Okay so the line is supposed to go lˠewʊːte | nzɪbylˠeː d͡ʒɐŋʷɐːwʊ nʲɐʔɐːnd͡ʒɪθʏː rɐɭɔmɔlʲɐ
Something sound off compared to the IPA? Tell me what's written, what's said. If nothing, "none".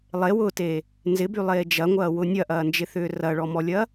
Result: none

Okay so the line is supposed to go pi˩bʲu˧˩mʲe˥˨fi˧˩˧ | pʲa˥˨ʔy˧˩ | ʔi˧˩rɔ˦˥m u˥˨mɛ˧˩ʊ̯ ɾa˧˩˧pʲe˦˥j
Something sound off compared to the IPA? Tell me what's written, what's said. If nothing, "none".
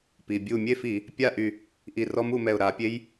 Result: none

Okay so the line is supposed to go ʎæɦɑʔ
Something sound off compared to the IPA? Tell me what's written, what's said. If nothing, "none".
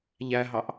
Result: none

